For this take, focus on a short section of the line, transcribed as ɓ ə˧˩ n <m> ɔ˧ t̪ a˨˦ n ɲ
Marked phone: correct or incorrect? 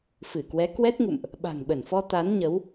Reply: incorrect